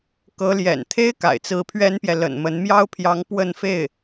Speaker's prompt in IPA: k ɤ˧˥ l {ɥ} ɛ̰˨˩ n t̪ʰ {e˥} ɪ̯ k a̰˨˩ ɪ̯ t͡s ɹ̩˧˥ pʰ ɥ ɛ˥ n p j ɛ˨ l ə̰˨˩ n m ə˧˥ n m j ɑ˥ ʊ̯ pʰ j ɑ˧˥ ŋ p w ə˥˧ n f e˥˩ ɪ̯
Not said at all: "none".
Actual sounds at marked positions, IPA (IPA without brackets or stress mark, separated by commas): j, e˥